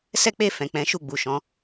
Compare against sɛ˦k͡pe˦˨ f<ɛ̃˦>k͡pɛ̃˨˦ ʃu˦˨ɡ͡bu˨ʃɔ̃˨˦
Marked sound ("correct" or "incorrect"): incorrect